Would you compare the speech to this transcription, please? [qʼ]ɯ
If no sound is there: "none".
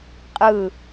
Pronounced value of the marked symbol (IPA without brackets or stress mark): qʼ